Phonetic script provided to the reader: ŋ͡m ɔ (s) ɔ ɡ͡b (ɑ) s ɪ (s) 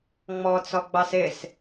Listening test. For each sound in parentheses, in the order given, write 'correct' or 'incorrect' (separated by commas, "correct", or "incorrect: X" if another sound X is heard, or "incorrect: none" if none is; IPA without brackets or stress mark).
incorrect: t͡s, correct, correct